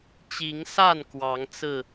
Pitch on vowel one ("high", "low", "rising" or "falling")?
rising